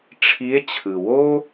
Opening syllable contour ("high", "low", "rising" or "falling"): rising